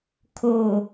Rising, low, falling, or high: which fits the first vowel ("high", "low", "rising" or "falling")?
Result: low